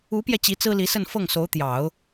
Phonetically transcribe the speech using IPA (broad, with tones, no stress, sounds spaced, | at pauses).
u˧˥ p j ɛ˧ t͡ɕ i˧˥ t͡s ɹ̩˥ l i˧˥ s ə˥˧ n f ɤ˥˩ ŋ s o˧˥ ʊ̯ t̪ j ɑ˨˩˦ ʊ̯